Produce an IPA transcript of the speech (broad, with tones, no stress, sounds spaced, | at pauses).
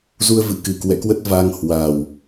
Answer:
z u˧ ə̯ v ɨ̰˧˨ k ɨ˨˩ k w ɛ̰˧˨ k w ə˦˥ t̚ v a˧ ŋ h w a˨˩ w